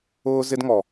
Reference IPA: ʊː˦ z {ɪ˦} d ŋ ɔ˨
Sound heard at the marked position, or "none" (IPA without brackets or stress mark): ɪ˦